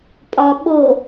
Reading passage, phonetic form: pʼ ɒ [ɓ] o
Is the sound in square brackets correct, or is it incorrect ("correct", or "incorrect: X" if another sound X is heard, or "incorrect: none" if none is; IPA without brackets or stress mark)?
correct